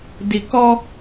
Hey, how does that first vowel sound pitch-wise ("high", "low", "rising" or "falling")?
low